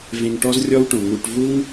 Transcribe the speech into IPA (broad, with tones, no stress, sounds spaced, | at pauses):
v ẽ˧ ŋ ʈ ɔ˦ z rʲ ɔ˦ w ʈ õ˨ ŋ u˧ ʈ v u˦ ŋ